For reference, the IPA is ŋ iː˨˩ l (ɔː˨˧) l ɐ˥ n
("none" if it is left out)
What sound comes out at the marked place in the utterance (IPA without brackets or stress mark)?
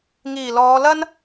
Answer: ɔː˨˧